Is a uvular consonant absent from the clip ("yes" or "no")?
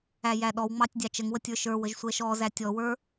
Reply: yes